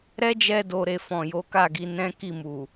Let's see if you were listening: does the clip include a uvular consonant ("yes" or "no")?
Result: no